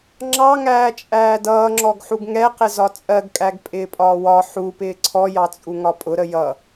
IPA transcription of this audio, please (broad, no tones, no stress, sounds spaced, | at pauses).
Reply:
ŋ͡ǁ ɑ ŋ æː t͡ʃʼ æː d ʌː ŋ͡ǁ ɔ ɡ ħ u ɡ ŋ ɛ q ɪ z ɒ t͡sʼ ɜ ɡ kʼ æ ɡ pʼ ɪː pʼ ɒː w ɒ ħ u p ɪː ǀʰ ɔ j ɑ t͡sʼ u ŋ ɒ pʼ ʊ ɾ ə j ʌ